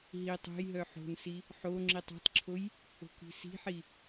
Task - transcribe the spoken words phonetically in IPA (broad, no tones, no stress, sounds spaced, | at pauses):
ɦ i tˤ o̤ j ɦ œ ħ o̤ n s i | ħ o ŋ͡ǁ i tˤ ɔ̤ tˤ ǁʰ o j | o̤ k i̤ s i̤ ħ i